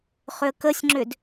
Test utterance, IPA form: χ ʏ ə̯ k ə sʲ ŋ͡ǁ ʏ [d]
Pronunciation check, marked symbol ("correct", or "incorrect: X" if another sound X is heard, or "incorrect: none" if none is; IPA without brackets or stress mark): correct